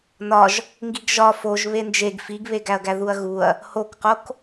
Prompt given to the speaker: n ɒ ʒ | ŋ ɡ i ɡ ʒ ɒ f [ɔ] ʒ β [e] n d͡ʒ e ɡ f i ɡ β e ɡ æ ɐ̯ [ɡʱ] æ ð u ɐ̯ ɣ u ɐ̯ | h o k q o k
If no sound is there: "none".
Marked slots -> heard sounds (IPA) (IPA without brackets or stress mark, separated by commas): o, e, ɡ